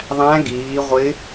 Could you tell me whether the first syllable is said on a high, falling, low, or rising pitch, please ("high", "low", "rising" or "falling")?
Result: rising